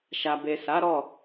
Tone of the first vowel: low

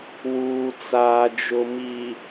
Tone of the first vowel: low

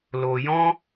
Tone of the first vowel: low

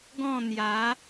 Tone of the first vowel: falling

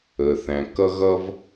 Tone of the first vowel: low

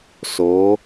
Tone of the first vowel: rising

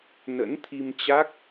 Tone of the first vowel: rising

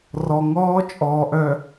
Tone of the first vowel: low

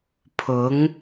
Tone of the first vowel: rising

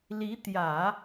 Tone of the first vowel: rising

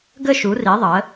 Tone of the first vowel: falling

